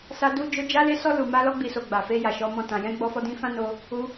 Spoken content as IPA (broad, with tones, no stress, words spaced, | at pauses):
sa˧du˧d͡ʒo˧ d͡ʒa˧le˧sɔ˧ lu˨ma˧ lɔ˧ɡ͡bi˨so˨ ɡ͡ba˨fe˧ ja˨ʃɔ˨˦mɔ̃˦˨ tã˨jɛ̃˧ ɡ͡bɔ˧fɔ˧dĩ˧ fã˦no˧ | u˧